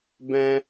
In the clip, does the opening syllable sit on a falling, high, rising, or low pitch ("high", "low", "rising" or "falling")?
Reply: high